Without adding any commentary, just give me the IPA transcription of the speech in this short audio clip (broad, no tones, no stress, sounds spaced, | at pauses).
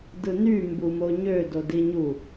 d ɯ n y m b u m o ɲ ø d o d i ɲ u